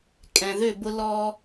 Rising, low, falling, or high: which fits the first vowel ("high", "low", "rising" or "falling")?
low